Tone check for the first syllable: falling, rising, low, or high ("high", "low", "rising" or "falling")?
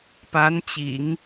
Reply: rising